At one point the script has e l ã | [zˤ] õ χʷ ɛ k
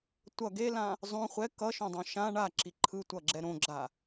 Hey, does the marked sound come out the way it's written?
yes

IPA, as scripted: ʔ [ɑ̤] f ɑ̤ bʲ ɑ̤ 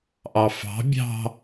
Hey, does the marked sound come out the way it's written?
no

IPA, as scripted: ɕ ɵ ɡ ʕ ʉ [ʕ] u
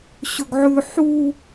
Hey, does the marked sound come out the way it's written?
no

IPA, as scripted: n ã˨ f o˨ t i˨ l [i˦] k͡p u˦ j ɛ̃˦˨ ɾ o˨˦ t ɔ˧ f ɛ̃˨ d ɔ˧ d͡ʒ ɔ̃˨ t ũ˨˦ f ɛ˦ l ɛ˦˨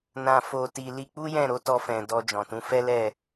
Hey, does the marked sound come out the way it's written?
no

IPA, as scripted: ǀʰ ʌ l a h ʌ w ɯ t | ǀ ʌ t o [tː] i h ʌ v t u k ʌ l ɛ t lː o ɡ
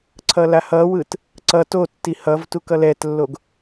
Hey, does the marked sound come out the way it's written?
yes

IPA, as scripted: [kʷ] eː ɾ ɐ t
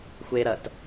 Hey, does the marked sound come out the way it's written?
no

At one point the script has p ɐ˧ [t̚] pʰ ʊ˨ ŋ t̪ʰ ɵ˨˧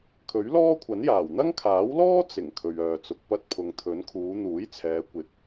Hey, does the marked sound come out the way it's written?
yes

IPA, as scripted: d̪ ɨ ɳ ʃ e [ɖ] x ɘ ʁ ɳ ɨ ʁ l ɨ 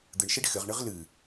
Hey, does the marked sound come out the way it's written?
yes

